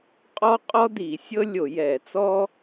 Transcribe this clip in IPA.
qʼ ɔ˥ qʼ ɔ˥ d i˧˩˧ sʲ ɤ˥ lʲ o˧˩˧ j ɛ˧˩˧ t͡s ɔ˥

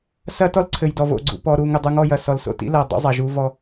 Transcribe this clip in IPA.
s ɐ˦ t ɔ˦ l ǀʰ ɘ˨ j d ɔ˨ v o̰˨ ɡ͡ǀ ṵ˨ p ɔ˨ ɾ u˨ ŋ ɘ˨ dˤ u˨ ŋ ɔ˦˨ j ɐ˨ s ɔ˨ l s o̰˨ t ḭ˦ l ɐ˨ dˤ ṵ˦ zˤ ɐ˨ ʒ u˦ v ɔ˦

